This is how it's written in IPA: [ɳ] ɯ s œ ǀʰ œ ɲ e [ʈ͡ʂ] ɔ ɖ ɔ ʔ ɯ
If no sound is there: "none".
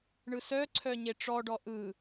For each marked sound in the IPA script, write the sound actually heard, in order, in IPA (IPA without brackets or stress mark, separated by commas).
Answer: ɳ, ʈ͡ʂ